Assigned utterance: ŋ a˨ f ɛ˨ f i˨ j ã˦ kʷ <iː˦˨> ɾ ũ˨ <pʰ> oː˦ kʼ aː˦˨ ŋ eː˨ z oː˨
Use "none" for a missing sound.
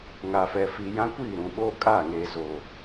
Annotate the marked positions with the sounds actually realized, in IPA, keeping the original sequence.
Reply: iː˦˨, ɓ

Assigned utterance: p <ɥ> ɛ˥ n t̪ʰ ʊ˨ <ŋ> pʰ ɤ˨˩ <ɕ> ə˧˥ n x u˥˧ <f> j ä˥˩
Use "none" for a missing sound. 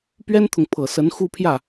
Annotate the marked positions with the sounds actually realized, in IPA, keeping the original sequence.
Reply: ɥ, ŋ, s, pʰ

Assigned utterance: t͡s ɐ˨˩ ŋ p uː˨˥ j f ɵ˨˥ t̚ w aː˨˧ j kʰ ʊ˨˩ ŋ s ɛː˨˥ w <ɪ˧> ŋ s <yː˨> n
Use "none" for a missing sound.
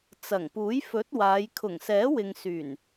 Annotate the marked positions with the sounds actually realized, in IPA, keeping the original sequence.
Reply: ɪ˨, yː˨˩

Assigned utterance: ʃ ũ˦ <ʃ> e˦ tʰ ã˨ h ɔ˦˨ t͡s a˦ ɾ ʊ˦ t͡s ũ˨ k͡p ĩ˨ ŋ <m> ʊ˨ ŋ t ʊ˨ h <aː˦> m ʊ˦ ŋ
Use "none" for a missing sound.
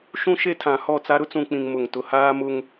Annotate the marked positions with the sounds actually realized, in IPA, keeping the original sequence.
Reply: ʃ, m, aː˦

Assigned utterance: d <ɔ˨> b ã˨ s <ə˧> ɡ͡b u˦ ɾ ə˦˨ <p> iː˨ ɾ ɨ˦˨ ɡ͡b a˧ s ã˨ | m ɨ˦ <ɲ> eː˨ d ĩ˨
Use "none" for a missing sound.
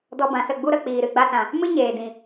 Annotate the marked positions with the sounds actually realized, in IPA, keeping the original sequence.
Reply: ɔ˧, ə˦˨, k͡p, ɲ

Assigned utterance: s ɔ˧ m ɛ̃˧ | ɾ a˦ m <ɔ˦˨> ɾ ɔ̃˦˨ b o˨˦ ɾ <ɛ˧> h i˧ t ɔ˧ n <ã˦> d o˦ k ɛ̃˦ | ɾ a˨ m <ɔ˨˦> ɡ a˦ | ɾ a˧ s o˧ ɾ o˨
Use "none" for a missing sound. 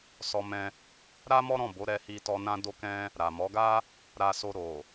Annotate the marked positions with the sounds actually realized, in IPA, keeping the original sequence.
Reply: ɔ˦, ɛ˧, ã˦, ɔ˨˦

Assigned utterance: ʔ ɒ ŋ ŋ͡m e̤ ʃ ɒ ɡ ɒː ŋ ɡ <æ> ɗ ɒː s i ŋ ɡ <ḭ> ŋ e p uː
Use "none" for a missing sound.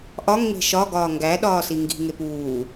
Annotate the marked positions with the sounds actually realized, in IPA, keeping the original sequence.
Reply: æ, i̤

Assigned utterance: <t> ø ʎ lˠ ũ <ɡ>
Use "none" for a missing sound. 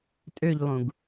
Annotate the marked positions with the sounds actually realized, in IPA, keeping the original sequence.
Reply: tʼ, ɡ

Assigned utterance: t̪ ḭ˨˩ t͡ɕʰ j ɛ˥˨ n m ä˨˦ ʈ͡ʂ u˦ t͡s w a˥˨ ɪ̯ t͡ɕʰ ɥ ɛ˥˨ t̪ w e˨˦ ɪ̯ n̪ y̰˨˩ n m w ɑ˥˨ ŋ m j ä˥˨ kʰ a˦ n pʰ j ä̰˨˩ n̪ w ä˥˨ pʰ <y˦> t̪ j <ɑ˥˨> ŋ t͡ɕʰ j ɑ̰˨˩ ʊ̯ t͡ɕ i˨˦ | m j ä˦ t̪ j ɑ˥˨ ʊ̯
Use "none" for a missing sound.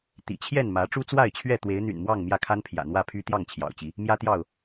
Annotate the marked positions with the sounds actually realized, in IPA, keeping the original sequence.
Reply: y˦, ɑ˥˨

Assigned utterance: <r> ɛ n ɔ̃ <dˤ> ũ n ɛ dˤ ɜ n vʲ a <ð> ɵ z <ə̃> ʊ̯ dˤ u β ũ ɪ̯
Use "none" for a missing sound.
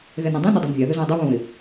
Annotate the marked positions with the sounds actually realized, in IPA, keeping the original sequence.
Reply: ɣ, dˤ, ð, ɔ̃

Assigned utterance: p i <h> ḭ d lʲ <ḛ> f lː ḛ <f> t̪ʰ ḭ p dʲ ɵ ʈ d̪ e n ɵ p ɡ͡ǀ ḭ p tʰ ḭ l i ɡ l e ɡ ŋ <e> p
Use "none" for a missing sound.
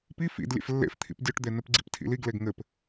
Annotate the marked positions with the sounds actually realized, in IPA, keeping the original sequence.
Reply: f, ḛ, f, ɘ

